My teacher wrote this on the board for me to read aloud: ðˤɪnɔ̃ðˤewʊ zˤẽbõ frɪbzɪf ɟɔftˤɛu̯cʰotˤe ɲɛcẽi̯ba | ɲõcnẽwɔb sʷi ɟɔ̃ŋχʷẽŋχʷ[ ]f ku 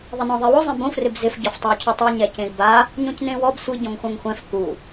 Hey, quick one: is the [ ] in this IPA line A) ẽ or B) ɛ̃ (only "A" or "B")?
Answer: B